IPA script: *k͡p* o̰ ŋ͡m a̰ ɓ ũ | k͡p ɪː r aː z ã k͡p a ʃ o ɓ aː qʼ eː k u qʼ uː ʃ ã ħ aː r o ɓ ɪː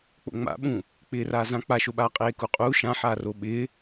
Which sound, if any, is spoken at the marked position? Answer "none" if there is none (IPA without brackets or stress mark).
k͡p